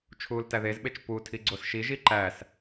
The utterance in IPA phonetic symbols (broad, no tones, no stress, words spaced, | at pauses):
t͡ʃʰuːltæðezɓet͡ʃ putʰiɡ͡ǀos ʃiʒi ǃæs